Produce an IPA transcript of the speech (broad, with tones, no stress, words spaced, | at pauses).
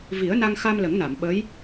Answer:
vi˨˩˦ə̯na˧ŋxa˧m lə˨˩˦ŋna˨˩˨mɓə˧˥j